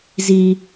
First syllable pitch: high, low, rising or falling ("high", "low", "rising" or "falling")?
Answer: high